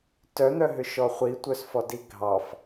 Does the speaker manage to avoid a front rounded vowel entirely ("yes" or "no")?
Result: no